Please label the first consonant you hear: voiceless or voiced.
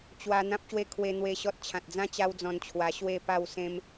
voiceless